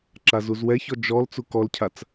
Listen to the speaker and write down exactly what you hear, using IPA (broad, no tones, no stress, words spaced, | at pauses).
ǁazuzwɛçɔ d͡ʒɔl t͡sukɔlcʰat͡s